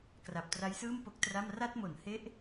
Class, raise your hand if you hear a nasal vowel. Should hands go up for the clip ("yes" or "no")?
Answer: no